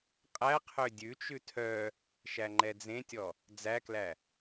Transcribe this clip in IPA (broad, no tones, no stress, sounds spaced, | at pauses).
qʼ æ qʰ ø dʲ ʉ t͡ʃ ʉ tʰ œ | ʃ æ ŋ͡ǃ ɛ d͡z ẽ tʲ ɔ | d͡z æ k l æ